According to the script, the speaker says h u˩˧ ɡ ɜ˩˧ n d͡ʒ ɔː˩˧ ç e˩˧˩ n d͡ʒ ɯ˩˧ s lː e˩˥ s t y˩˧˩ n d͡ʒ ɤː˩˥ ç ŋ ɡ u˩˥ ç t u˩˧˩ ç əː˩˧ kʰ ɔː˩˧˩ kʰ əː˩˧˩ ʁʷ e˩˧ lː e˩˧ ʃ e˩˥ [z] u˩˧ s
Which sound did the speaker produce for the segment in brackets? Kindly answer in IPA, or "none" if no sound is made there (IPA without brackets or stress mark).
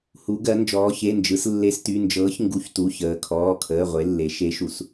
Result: ʃ